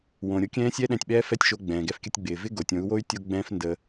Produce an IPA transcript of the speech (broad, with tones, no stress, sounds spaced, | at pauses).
w õ˨ ɾʲ o˧ kʲ ɛ̃ː˦ sʲ ɛ˦ ɗ ɛ̃˧ tʲ ɓ ɛː˦ f ɛ˦ tʲ ʃ o˧ ɡ͡b ɛ̃ː˨ ɡ ɛ˧ f kʲ ə˧ tʲ ɡ͡b ɪː˨ v ɪ˦ ɡ o˨ tʲ õ˨˦ u̯ w o˦ y̯ tʲ o˦ ɡ͡b ɛ̃ː˦ f n d ə˧